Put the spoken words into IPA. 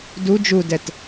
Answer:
d u d͡ʒ u d ɛ t

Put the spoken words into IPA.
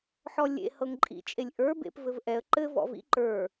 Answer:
ħ ɔ lʲ ḛ h ɤ ŋ ǃʼ ḭ t͡ʃʼ e lʲ ʔ ə˞ b ḛ p v ɘ v ʔ ɛ ə̯ ǃ ɘ v ɔ̰ v ḭ ǃ ə˞

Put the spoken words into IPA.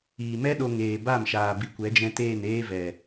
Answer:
iː˨ m ɛ˦ ɗ o˧ ŋ eː˨ b a˦˨ m ʃ aː˨ b i˨ kʷ ɛ˨˦ d͡ʒ ɛ̃˧ t eː˦˨ n eː˦ v ɛ˨

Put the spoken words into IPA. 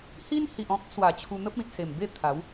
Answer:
h i˦ n h i˨ ʔ ɔ̃˦ k̚ s w a˨˩ t͡ɕʰ u˧ n̪ ə˦ p̚ ĩ˨ t̚ s e˨˩ m b e˥˧ t̪ʰ a˨˦ w

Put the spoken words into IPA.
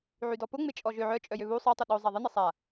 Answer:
ʕ y d ɔ p ʊ ŋ͡m ɪ t͡ʃʼ ɔ ʒ ø ʕ œ t͡ʃʼ œ j ø β u sˤ œ tˤ o ɗ o zˤ a ðˤ ɪ n ɪ sˤ a

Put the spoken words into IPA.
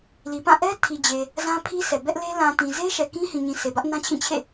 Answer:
l i˨ p ã˦˨ ʔ ɛ˦ tʰ i˨ d͡ʑ e˨ | z ã˦ pʰ i˦ s ɛ˨ b ɛ˦ ʔ l e˦ l ã˨ t ĩ˨ z e˦ ʃ ɛ˨ k ĩ˦ h ĩ˨ ɲ ĩ˨ s e˨ b ä˦ ʔ n ã˦ t͡ɕʰ ĩ˦˨ t͡ɕʰ ḛ˦˨

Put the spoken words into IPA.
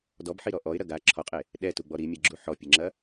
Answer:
d ɔ b ħ i ɾ ɔ ʔ ɔ ɪ̯ ɾ ɐ ɡ a ǁʰ ɔ qʼ e | ɗ ɛ t u ɡ͡b ɔ ɾ i mʲ ɛ ɡ͡ǁ u ħ ɔ pʲ ɨ ŋ͡ǁ ɐ

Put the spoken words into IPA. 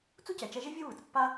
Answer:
t͡s u˥ c ɛ˩ t͡ʃ ɛ˧ ʒ e˥ vʲ o˥ β ɯ˩ t͡s pː a˥

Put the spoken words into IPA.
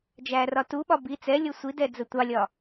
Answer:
d͡ʒ æ r ɒ t u ɓ ɒ b i t͡s ɛ lʲ ɤ sʷ i d ɛ d͡z ə tʷ ɑ lʲ ɒ

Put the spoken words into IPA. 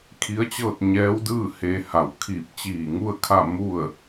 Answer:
kʰ i˧˥ ə̯ t͡ɕ ɤː˥˨ t̚ ɲ ɛː˧˥ w d ɯː˥˨ h eː˧ h a˧˩ w kʰ iː˧˩ p̚ t͡ɕ iː˧˩ ŋ u˥˨ ə̯ kʰ a˥˨ m u˥˨ ə̯

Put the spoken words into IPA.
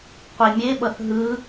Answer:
qʷ i mʲ e ɓ ʌ θ ɦ ɯ

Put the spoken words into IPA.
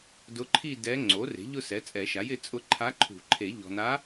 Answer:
d ʊ˧˥ ǃʰ i˥˧ d ɛ˧˥ ŋ͡ǀ o˩˥ r e̤˩˥ ʎ ʊ˥˧ s ɛ˩˥ t͡sʼ ɛ˨˩˦ ʃ a˩˥ j ɪ˩˥ t͡sʼ ʊ˧˥ ǃʰ a˧˥ ǃʰ ṳ˨˩˦ ǃʰ e˨˩˦ ʎ ɔ̤˨ n a˧˥

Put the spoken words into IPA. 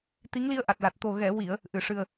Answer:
t̪ i˧˥ ŋ l i˧ ə̯ ʔ a˨˩ t̚ l a˨˩ t̚ t̪ o˨˩ ɣ ɛ˨˩˨ w i˨˩˨ ə̯ | ʔ ɨ˨˩˨ ʂ ɨ˨˩ ə̯

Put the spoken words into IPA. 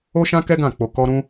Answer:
o˦ ʃ ã˦ k ɛ˦ ɡ ã˦˨ k͡p o˧ k ɔ˦ ɾ ũ˦

